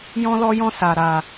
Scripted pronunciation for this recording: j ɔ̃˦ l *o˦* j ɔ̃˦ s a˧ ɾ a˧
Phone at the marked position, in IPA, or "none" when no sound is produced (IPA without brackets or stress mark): ɔ˦